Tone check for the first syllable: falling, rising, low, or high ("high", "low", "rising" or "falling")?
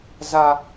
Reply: high